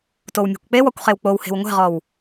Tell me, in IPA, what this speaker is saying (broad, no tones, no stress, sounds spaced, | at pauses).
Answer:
t o w mʲ e̤ kʷ k͡p e w ɔ kʷ χ e w k͡p o w h e̤ w ŋʷ e̤ ʁ ɔ w